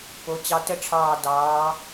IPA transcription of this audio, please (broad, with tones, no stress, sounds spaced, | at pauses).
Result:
p o˩˧ t͡ɕ ɑ˧ t ə˥˧ ʈ͡ʂʰ ɑː˧˩ d ɑː˩˧